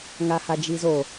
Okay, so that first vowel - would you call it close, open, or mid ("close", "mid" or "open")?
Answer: open